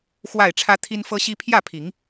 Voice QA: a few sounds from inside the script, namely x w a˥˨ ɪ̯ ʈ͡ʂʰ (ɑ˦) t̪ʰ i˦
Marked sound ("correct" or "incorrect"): incorrect